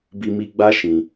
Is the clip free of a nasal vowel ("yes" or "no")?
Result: no